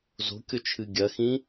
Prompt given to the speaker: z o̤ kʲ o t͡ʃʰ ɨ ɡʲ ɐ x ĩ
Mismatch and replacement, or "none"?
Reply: none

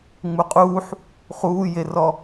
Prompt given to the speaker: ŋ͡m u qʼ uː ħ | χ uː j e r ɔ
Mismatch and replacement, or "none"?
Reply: none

